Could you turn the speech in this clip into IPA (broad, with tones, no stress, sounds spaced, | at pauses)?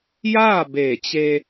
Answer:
j aː˥˨ b eː˧˩ t͡ɕ e˧